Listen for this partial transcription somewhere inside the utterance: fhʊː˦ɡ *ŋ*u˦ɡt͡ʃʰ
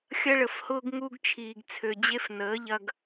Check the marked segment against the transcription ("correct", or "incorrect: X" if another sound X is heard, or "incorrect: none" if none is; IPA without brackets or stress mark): correct